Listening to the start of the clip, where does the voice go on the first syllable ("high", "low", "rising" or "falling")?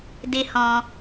high